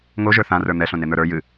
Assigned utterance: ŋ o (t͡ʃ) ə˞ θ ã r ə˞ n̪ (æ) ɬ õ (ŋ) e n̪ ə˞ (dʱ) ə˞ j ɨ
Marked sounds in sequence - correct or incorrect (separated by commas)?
incorrect, incorrect, incorrect, incorrect